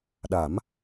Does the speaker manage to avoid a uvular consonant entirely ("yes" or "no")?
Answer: yes